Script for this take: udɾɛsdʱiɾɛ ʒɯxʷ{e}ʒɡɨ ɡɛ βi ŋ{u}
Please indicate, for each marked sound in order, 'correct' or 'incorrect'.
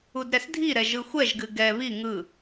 incorrect: ɛ, incorrect: ɯ

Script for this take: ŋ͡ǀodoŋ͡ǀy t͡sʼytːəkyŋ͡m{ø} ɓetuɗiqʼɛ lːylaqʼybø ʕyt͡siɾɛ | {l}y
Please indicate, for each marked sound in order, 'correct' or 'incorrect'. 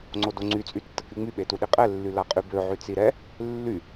incorrect: y, incorrect: lː

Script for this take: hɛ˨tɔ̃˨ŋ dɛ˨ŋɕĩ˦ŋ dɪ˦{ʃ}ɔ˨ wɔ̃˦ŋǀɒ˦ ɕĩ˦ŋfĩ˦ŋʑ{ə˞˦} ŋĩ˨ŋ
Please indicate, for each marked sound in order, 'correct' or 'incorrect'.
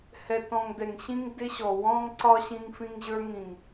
incorrect: ɕ, correct

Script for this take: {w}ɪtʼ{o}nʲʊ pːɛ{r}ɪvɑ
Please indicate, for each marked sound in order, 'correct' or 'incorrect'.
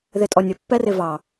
incorrect: ð, incorrect: ɔ, correct

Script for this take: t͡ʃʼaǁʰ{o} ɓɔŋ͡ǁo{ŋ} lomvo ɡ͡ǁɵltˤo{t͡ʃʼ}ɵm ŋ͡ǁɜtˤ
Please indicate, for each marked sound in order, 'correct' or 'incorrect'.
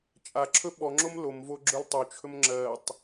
incorrect: ɵ, incorrect: m, incorrect: t͡ʃʰ

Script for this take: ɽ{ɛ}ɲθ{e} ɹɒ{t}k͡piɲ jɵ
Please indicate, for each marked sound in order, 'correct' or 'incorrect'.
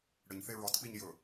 incorrect: ə, correct, correct

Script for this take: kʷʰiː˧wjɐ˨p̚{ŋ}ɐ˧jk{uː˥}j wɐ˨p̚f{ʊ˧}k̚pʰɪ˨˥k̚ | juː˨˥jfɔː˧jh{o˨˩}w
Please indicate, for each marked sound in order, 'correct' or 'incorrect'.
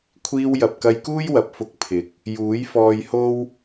incorrect: k, correct, correct, incorrect: o˥

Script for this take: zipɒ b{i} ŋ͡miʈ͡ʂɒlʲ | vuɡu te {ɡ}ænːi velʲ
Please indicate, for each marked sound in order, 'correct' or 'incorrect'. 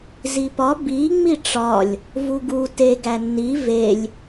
correct, correct

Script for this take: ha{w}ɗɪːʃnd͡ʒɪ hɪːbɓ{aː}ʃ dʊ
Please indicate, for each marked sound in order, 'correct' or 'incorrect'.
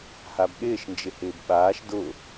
incorrect: b, correct

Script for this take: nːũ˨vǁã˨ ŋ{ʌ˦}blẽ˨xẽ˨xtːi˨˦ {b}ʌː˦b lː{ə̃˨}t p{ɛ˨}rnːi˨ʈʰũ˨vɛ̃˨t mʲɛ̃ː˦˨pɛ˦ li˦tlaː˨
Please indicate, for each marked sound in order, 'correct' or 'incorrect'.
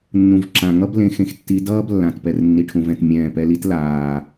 correct, incorrect: d, incorrect: ã˨, correct

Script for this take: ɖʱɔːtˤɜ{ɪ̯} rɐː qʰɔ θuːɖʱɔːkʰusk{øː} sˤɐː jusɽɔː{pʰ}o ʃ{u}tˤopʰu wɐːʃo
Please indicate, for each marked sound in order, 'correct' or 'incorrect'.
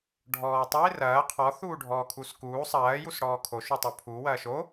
correct, incorrect: uː, incorrect: kʰ, correct

